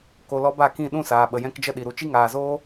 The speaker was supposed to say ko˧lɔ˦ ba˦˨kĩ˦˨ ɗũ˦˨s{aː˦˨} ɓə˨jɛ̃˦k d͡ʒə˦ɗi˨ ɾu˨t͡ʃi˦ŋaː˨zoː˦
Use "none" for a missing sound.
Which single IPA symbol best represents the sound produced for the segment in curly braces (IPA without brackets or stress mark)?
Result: aː˨